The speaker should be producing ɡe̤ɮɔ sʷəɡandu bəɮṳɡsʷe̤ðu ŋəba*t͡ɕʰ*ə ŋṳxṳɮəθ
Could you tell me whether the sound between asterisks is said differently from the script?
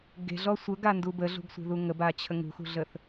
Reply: no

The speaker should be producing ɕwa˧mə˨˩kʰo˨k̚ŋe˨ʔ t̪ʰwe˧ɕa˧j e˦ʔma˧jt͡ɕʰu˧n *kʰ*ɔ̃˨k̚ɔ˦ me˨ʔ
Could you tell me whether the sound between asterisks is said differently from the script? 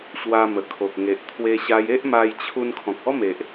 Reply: no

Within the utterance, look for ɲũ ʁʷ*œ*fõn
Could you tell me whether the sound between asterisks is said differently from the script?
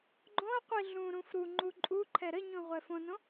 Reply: yes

